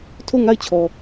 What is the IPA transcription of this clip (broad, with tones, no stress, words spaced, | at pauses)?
tʰo˦˨ŋa˦˨ɪ̯t͡ɕʰɔ˨